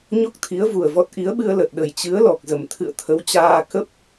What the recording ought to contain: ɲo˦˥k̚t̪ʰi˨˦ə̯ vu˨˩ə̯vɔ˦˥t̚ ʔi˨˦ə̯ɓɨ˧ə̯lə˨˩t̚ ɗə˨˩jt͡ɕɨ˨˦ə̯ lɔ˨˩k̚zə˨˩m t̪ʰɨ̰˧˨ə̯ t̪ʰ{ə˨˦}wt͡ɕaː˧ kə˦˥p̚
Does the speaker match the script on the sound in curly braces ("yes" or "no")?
yes